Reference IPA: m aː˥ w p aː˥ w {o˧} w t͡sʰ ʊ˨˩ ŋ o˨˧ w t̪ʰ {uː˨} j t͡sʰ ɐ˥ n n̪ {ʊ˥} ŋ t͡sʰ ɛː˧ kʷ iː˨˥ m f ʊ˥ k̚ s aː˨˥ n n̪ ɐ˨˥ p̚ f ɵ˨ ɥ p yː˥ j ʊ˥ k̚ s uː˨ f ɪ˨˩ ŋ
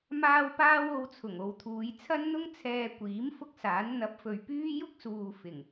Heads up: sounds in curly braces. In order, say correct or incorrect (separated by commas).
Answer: correct, incorrect, correct